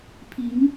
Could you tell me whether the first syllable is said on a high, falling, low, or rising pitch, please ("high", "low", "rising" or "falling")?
rising